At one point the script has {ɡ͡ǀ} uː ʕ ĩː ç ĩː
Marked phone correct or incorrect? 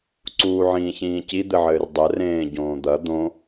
incorrect